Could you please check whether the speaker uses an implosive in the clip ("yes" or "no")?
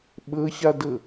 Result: yes